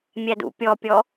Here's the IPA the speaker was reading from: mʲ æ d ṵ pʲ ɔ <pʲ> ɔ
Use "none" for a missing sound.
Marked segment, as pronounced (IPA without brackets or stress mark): pʲ